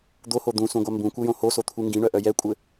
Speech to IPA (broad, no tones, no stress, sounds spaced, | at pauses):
d̪ o h o d̪ ũ s ũ ɡʷ a m b ũ kʷ ɘ j õ h o s o t̪ʰ u ŋ ɡ ĩ ɳ œ ʔ œ j ɛ kʷʼ ɘ